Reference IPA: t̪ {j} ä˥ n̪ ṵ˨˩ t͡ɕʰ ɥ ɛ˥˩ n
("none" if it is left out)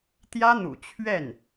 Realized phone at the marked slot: j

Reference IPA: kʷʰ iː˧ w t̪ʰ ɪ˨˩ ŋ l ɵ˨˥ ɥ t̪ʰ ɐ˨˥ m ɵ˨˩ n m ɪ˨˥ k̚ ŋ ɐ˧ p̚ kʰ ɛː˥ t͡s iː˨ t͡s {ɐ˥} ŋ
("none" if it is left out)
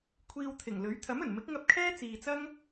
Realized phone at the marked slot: ɐ˥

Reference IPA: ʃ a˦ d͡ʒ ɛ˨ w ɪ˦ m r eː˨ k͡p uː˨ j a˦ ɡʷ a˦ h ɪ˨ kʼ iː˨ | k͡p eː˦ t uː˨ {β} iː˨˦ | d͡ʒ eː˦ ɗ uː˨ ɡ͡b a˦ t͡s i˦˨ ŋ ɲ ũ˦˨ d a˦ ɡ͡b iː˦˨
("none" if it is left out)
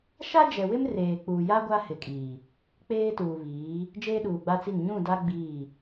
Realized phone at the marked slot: β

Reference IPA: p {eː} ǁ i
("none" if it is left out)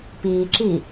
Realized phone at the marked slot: iː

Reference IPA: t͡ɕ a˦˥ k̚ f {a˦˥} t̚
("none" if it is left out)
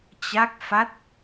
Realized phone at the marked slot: a˦˥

